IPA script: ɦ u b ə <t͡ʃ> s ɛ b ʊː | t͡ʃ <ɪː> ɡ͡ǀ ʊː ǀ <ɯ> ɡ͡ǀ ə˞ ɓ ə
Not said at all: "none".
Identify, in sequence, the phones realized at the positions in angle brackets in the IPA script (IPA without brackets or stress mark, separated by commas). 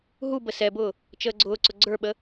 none, əː, ʊ